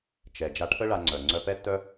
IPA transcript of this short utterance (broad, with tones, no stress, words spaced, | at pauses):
t͡ʃɛ˩ d͡ʒa˧ʈʰə˥ɭa˧ŋ͡ǀœ˩ ŋ͡ǀœ˧pɛ˥tːœ˥